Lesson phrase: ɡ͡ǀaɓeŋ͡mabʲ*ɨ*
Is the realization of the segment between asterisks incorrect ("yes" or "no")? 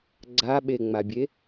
yes